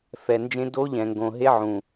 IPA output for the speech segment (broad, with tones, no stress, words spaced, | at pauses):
fɛ˨nd͡ʒẽ˦ do˦ʎɛ̃˨ŋɡõ˨ɦe˦ ʕũ˨